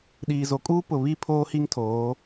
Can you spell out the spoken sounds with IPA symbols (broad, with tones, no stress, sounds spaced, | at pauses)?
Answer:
ɗ iː˨ z o˨ kʼ uː˦ p ʊ˨ β i˦˨ pʰ oː˦ h i˦ ŋ tʰ oː˨˦